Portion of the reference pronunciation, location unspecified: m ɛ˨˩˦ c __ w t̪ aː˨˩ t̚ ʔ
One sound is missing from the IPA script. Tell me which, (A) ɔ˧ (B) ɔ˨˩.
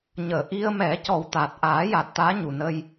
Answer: B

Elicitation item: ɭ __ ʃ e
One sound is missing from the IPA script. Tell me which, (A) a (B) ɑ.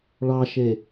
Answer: B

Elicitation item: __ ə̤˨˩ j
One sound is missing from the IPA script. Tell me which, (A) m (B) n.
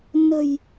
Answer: B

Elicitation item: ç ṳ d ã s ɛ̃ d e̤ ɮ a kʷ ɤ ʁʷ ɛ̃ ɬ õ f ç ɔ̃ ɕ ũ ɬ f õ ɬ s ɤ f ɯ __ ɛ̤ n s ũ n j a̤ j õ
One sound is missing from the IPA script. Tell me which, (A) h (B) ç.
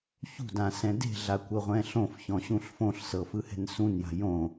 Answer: A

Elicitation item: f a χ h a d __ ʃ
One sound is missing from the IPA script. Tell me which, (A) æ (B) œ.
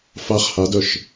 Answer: B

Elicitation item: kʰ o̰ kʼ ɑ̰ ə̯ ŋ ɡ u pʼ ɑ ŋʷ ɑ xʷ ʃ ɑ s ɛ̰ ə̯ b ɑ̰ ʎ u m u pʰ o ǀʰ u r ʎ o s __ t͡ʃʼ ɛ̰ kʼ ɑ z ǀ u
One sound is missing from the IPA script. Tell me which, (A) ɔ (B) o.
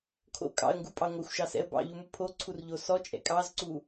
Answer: A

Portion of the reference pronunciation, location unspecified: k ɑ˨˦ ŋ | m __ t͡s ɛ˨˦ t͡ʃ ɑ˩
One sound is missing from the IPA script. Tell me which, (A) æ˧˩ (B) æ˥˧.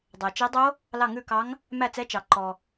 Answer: A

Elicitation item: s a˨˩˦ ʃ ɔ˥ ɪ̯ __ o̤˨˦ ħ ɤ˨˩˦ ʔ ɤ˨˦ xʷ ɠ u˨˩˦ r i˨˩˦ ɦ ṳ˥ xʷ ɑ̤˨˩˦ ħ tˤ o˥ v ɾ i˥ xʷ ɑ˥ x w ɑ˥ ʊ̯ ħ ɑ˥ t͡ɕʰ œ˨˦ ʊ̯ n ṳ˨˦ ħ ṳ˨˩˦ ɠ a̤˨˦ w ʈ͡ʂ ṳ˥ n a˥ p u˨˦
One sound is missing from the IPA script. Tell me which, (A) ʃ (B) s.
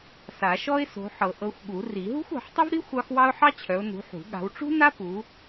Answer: B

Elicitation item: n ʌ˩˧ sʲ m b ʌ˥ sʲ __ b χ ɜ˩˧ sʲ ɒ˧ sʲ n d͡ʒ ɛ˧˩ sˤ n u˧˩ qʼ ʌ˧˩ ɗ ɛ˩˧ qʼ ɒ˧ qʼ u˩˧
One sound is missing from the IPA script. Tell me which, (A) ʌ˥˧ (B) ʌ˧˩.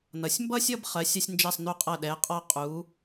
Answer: A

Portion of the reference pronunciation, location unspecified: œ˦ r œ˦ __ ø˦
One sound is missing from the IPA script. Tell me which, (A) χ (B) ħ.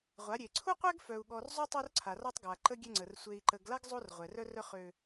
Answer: A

